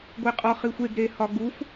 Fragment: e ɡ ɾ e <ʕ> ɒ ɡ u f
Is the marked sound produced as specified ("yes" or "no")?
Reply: no